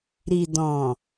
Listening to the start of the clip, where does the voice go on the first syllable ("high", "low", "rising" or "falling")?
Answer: low